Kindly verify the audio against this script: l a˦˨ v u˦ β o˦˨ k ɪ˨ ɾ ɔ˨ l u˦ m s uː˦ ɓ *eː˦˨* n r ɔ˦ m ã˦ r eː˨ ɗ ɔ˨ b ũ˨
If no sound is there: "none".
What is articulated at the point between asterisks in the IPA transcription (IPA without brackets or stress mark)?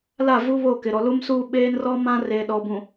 eː˦